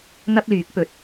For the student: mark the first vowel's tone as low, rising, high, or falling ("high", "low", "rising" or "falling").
high